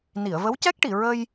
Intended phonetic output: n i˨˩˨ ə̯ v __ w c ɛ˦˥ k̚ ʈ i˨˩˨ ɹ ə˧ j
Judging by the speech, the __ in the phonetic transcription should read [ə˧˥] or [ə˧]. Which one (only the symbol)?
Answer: ə˧˥